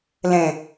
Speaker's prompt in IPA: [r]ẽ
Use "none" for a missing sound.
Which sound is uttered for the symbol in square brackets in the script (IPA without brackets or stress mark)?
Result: l